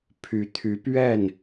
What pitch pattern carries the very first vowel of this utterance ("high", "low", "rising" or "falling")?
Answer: rising